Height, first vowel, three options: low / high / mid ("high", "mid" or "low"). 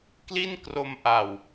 high